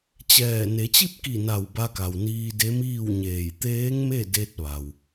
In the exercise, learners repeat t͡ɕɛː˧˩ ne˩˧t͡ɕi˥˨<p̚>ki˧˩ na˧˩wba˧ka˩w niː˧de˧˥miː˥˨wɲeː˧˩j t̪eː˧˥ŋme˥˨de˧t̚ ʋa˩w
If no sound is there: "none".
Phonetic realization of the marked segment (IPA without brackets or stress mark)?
p̚